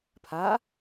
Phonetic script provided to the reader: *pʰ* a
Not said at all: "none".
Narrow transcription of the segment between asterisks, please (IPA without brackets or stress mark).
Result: pʰ